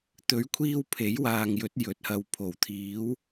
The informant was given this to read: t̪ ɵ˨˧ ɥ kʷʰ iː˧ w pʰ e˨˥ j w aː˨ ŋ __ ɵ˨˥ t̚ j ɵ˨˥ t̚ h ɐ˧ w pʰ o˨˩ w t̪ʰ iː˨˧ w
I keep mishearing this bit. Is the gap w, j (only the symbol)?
j